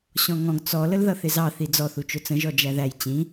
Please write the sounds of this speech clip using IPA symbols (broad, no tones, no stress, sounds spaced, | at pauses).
ɕ ɔ̃ ŋ ɔ̃ ɡ t͡s ɔ l ə l ð ʌ θ ɪ z ɑ θ i d͡z ɔ θ u t͡ʃ ʊ t͡s ə̃ ʒ ɔ d͡ʒ æ ð æ j t͡ɕ ĩ